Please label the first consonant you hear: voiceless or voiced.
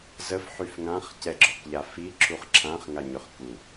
voiced